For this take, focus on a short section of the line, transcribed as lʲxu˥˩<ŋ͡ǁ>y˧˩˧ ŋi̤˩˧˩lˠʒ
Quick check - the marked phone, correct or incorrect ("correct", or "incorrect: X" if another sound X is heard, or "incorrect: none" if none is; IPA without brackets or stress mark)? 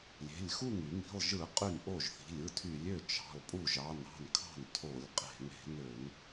incorrect: ŋ